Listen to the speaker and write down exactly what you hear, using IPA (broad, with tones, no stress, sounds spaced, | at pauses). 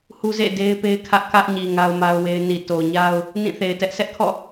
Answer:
h u˦ z ḛ˦˨ d e˦ ɪ̯ p e˦ ɪ̯ kʰ ä˦ ʔ k ä˦ ʔ ɲ i˨ ŋ a˦ ʊ̯ m a˦ ʊ̯ w e˦ ɪ̯ n i˨ t o˨ ɲ a˦ ʊ̯ | n ĩ˦˨ θ e˨ ɪ̯ t ɛ˦ ʔ sʰ ɛ˦ ʔ kʰ ɔ̰˦˨